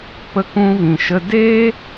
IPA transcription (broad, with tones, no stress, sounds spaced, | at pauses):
p ə˦ k ũ˦ v ĩ˧ ʃ ə˦ d eː˦